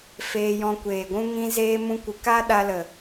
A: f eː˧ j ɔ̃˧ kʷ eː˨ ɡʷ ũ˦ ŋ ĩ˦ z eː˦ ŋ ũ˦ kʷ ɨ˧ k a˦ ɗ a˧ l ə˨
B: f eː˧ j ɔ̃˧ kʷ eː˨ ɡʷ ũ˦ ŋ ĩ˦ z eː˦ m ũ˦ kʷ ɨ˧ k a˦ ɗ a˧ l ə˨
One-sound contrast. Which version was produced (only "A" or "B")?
B